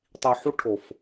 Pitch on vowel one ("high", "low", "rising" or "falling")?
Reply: low